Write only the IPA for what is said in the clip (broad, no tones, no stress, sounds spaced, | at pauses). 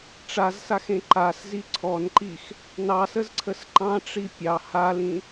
ʈ͡ʂ a z s a x ẽ ǃ a s z i ǀʰ ɔ n ǃ i x | n ɑ s ə z ǀʰ ə s ǃ ɑ̃ ʈ͡ʂ i pʲ ɑ h a l ĩ